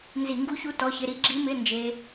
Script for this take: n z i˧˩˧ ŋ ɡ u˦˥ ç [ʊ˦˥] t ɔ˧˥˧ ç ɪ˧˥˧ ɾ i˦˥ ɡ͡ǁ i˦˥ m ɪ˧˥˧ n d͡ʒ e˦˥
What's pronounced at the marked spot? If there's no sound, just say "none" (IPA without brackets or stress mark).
u˦˥